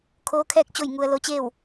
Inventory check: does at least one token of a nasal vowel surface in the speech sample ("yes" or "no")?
no